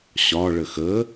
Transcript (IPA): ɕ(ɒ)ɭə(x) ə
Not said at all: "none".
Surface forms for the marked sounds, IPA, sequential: ɒ, x

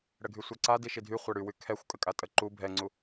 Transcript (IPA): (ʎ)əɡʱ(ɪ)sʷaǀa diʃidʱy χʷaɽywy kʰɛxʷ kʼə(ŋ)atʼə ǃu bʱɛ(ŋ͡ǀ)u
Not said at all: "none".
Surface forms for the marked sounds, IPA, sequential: ɽ, y, kʼ, ŋ͡ǀ

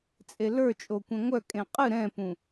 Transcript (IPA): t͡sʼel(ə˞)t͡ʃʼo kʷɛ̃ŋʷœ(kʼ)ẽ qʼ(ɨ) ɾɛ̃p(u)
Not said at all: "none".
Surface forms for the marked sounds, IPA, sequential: ə˞, kʼ, ɨ, ũ

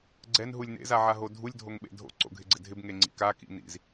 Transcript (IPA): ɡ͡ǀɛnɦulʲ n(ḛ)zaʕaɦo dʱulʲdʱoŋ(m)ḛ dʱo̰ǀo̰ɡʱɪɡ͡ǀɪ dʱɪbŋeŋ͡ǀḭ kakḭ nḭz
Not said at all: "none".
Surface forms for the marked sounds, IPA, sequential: ḛ, ɓ

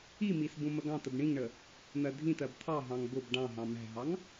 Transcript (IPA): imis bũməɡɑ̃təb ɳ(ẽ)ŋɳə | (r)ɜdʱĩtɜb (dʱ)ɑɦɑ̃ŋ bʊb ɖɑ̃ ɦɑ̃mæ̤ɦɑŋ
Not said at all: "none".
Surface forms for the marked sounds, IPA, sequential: ĩ, n̪, t̪ʰ

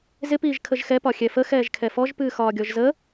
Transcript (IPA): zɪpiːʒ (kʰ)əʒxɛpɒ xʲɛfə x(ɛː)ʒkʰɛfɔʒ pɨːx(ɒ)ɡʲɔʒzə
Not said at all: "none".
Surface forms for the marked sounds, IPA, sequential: kʰ, ɛː, ɒː

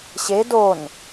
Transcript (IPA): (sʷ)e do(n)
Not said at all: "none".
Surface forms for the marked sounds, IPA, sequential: ɕ, n

